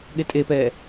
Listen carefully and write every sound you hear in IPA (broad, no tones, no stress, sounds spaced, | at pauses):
ɠ e tʼ e p ɛː